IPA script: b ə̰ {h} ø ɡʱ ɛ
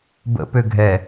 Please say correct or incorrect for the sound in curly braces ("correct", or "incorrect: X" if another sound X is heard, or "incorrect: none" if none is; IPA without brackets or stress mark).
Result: incorrect: p